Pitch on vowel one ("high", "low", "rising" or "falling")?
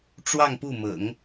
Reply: falling